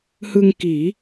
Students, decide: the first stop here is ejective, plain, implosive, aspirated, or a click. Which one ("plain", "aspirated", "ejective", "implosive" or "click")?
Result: plain